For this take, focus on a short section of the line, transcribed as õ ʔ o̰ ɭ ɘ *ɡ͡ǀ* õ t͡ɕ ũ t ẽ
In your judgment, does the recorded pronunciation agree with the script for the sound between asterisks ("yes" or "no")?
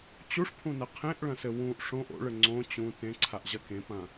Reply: no